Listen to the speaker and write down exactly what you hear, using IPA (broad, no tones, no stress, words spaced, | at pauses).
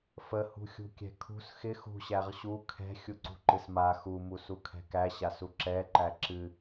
fə hṳxʲṳkʲɛ̤kʰṳs xɪ xṳ ɕæʁɕu kʰɛ̤ xʲuǀṳǃɨsma xu musukʰɛ̤kæ ɕasuǁɛ ǃæǁɨ